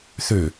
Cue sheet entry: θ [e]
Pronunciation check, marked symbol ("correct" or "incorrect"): incorrect